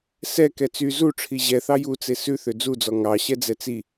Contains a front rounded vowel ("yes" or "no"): yes